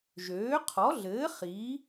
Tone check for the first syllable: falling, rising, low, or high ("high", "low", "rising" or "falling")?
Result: rising